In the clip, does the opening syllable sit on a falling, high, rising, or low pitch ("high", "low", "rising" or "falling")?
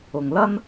low